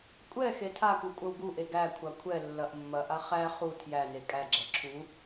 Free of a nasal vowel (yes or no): yes